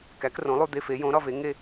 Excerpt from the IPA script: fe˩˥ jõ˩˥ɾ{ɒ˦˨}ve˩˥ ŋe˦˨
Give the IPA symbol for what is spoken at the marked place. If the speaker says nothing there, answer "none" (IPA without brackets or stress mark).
ɒ˦˨